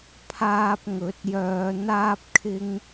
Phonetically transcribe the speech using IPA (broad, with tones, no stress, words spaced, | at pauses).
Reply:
pʰaː˧p̚ŋɵ˨˥t̚ jœː˨˧ n̪aː˧p̚kʰɪ˧ŋ